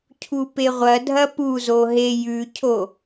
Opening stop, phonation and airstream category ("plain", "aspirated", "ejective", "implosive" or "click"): aspirated